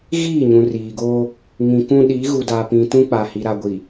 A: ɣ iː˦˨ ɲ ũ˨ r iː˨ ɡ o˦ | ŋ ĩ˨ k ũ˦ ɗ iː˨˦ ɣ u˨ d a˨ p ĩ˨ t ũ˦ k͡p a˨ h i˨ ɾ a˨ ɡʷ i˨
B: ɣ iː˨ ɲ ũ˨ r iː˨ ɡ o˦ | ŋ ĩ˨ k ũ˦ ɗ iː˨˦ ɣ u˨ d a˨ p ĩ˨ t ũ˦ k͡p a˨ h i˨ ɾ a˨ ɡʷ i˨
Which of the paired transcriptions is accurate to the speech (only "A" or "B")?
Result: A